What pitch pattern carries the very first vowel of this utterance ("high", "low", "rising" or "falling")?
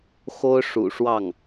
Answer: high